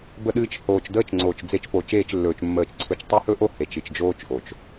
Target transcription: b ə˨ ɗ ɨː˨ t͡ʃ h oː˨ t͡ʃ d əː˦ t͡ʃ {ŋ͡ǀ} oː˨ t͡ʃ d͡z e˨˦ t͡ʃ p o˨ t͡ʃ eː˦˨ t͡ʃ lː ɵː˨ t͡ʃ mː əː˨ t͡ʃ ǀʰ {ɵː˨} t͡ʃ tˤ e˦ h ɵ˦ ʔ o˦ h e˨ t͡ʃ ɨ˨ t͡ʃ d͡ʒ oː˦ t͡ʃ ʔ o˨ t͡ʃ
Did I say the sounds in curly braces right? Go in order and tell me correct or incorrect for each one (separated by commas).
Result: correct, incorrect